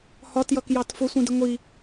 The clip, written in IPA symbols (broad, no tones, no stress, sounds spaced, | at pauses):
h ɒ t j ʌ k j ɑ t f ʊ sʷ ĩ d ɪ ŋʷ i